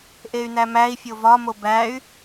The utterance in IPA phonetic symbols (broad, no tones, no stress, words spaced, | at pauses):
ʔey̯næmæi̯fʲo vɒmo bæy̯